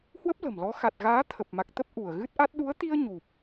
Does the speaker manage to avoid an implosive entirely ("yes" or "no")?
no